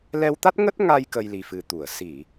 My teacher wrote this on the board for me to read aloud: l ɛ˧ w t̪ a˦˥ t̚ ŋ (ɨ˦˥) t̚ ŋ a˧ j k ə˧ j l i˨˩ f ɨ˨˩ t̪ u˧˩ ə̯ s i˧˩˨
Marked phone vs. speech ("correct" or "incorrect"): incorrect